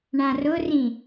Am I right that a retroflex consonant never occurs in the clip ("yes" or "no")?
no